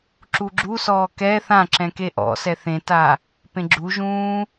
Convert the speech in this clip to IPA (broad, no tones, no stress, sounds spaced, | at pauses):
ǁ u ɡ͡ǁ u s ɔː k ɛ θ ã ǁ ɛ̃ k e ʔ ɔ̰ s ɛ θ ẽ t a | p ẽ ɡ͡ǁ u ʒ ũː